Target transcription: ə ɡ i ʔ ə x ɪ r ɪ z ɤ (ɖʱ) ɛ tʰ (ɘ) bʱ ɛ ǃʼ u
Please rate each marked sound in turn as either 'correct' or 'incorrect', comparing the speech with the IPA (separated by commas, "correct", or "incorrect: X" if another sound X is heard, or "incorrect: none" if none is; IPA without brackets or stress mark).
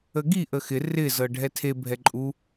correct, incorrect: e